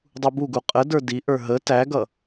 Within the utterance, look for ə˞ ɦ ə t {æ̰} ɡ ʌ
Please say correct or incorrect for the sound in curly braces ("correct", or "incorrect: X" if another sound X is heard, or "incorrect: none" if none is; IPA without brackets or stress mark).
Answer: incorrect: æ